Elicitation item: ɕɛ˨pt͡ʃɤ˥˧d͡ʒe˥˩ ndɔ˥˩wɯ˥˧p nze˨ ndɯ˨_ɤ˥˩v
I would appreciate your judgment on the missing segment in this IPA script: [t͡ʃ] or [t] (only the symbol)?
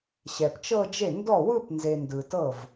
t